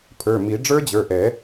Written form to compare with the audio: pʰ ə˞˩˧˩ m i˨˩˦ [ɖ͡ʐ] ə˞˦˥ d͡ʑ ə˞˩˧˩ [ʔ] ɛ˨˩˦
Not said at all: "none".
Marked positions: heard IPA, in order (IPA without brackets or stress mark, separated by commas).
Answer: ɖ͡ʐ, ʔ